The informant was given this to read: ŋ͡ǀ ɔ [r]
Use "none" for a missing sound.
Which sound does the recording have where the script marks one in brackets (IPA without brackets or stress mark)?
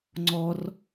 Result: r